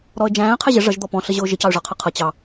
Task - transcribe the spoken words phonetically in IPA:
ɾɔə̯d͡ʒæ̃ːə̯ qʰɛʑə ʐʌʒ d̪ɔpɔ̃ɬəʑʊː ʒəcɑʊ̯ʐɑqʰʌ qʰʌ t͡ɕɑ

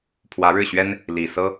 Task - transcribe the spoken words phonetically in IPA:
pʰwä˧˥ɻɻ̩˥˩ɕɥɛ˥n | li˨˩ sɤ˥

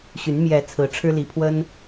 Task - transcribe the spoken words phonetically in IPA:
ɕy˨˦n mjɛ˨˦ t͡sʰɹ̩˨˦ʈ͡ʂʰɻ̩˦li˨˦pʰwə˦n

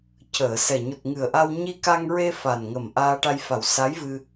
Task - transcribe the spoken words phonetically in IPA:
cəː˨˩˨sɛ˨˩ ɲu˨˩t̚ŋɨ˨˩ə̯ʔa˧w ɲi˧ka˧ŋɹe˧ fa˨˩nŋə˨˩m ʔaː˧ʈa˧jfa˨˩w sa˧˥jvɨ˧

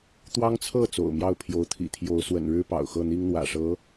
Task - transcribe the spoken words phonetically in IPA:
t̪wɑ˥ŋt͡sʰɤ˥˩ t͡so̰˨˩ʊ̯mjɑ˥˩ʊ̯pʰjo˧˥ʊ̯t̪ʰḭ˨˩ t̪ʰjo˧˥ʊ̯swə̰˨˩nɻɻ̩˥ pɑ̰˨˩ʊ̯xɤ˥˩n̪i˥ŋn̪wä̰˨˩ ʂɤ˧˥

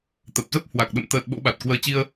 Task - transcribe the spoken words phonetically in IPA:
t̪ə˨˩p̚zə˦˥p̚ hwa˨˩k̚ɗə̰˧˨m t̪əː˨˩t̚ ɓo̰˧˥ɓa˨˩t̚kwəː˧ t͡ɕi˧ə̯

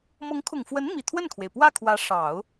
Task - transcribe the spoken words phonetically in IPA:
mɤ˧˥ŋkʰʊ˨˩ŋfwə˧˥n mi˨˩ t̪ʰwə˥˩nkʰwe˩ɪ̯pwä˥˩kʰwä˧˥ ʂɑ˨˩˦ʊ̯

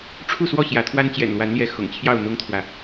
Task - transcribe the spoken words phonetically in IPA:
ʈ͡ʂʰu˥˨swɔ˥˨ ɕjä˨˦t̪ʰwa˦n t͡ɕjɛ̰˨˩nlwa˨˦nljɛ˨˦ xʊ̰˨˩ŋt͡ɕʰjɑ˥˨ʊ̯ n̪ʊ˦ŋt̪ʰwä˨

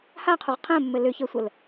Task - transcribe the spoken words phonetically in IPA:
haqʰʊʁ qʰə̃ːmːɘ lʏçəːsʷəl

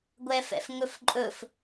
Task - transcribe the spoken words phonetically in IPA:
ɡʷɛfɛ̰fŋɵfǃʼɵf

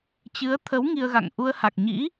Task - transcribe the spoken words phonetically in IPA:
t͡ɕɨ˨˦ə̯t̪ʰə˨˦w ŋi˧ə̯ɣa̰˧˨ŋ ʔu˧ə̯ha˨˩k̚ɲḭ˧˥

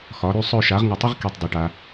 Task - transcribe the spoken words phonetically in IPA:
xɒ˩˥ ɾy˥˧sˤɵ˥˧ ʃa˩˥ʁŋə˧˩tˤɪ˥ʁ ki˧˩tˤdˤy˩ʈa˩

